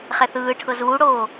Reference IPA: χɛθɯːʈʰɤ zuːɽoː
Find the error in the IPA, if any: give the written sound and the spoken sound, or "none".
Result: none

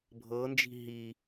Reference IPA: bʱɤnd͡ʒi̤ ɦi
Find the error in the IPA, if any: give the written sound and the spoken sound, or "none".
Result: none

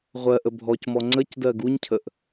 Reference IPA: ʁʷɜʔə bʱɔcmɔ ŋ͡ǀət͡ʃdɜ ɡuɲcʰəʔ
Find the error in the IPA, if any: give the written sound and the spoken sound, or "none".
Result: t͡ʃ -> c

